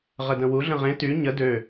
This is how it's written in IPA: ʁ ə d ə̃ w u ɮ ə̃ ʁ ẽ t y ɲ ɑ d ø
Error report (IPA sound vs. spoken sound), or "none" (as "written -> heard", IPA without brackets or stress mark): ɑ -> ə